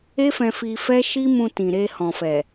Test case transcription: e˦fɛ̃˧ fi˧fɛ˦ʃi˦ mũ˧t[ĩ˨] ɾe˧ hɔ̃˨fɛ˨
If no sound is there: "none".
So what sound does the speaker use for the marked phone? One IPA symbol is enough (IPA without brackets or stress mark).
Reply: ĩ˨